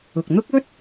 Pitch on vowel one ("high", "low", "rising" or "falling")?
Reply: low